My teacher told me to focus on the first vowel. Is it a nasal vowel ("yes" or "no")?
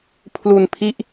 no